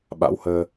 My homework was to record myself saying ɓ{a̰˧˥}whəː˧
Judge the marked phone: correct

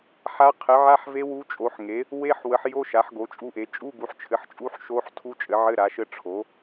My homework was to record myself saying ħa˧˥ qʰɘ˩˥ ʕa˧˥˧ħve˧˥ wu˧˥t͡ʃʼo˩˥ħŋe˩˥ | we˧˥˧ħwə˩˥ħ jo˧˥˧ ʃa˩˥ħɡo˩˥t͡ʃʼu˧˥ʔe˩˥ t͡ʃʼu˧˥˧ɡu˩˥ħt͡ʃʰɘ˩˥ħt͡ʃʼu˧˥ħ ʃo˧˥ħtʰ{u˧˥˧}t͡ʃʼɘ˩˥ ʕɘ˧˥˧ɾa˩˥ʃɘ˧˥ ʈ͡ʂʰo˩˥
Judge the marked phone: incorrect: u˧˥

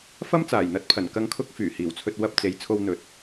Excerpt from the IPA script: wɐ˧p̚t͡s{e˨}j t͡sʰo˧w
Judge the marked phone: correct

